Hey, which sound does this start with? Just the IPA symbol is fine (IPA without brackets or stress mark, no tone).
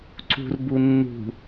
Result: ǀ